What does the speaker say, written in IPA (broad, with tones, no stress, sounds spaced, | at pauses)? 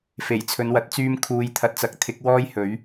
f e˨˩ j t͡sʰ ɵ˨˧ n w ɐ˨˥ t̚ t͡s yː˧ m kʰ uː˨ j t̪ʰ ɐ˨ t̚ t͡s ɐ˨˥ k̚ t̪ʰ ɪ˨˥ k̚ w ɔː˥ j h ɵ˨˥ ɥ